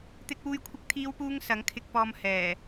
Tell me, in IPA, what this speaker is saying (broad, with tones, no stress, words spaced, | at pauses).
t̪ɪ˥k̚wuː˥j kʷʰɪ˥k̚ t̪ʰiː˥wpuː˥ŋ sɐ˨˥ŋkʰɪ˧k̚ pɔː˧m hɛː˨˩